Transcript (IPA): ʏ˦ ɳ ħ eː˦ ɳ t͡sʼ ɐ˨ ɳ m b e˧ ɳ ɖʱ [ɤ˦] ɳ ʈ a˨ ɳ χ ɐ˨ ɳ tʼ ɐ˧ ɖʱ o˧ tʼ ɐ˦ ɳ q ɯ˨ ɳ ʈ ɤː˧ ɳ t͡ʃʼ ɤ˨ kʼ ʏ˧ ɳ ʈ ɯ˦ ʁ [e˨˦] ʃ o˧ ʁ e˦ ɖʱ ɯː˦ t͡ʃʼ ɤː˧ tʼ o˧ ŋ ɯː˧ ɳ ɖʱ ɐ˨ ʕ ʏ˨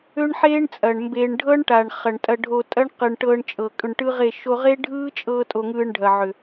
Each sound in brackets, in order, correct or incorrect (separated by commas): correct, incorrect